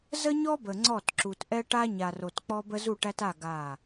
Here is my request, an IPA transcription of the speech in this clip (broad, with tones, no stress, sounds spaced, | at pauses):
z ə˦ ɲ ɔ˦ b ə˨ ŋ͡ǀ ɔ˦˨ t ǁ u˨ t ʔ ɛ˦ ʈ a˦ ɲ a˨ r o˨ t k͡p ɔ˦ b ə˦ z u˦˨ ʈ æ˦ t a˦˨ ɡ a˦˨